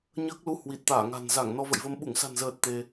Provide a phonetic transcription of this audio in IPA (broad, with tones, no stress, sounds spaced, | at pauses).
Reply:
ɲ əː˦˥ k̚ l u˧ h w i˨˩ t̚ t̪ aː˧˩ ŋ a̤˨˩ n z a˧˩ ŋ n ɔ˧ v ə̰˧˨ j v ə˧ m ɓ u˧˩ ŋ s a̤˨˩ n z əː˨˩ t̚ t̪ e˧